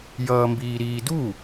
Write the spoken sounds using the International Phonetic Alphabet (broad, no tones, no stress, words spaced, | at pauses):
jʌːmbiːɾiːdu